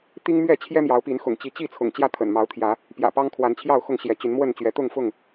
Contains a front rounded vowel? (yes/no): yes